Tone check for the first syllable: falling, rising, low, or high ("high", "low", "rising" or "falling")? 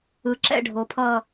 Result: low